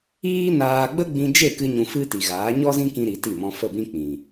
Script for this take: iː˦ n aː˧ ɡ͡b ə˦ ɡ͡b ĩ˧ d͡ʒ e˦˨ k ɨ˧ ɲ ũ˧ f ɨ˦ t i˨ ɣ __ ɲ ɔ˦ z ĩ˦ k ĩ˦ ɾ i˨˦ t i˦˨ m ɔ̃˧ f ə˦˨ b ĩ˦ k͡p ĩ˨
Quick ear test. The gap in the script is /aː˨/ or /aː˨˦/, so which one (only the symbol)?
aː˨˦